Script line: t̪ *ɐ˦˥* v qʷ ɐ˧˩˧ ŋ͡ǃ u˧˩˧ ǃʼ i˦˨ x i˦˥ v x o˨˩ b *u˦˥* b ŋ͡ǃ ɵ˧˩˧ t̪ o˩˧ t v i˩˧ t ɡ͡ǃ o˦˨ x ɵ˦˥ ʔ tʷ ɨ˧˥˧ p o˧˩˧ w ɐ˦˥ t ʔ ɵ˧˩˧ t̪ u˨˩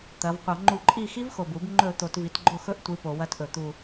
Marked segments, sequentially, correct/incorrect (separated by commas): incorrect, incorrect